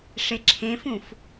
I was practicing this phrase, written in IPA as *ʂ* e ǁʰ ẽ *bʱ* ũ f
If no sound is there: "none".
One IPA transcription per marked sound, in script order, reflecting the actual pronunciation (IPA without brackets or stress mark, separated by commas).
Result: ʂ, f